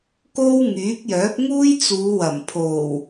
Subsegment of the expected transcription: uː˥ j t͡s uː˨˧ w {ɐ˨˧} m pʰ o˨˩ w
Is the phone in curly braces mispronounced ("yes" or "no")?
yes